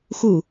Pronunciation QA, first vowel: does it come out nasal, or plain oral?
oral